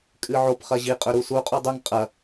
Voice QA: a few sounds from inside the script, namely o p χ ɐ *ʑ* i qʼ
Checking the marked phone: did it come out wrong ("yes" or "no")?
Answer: no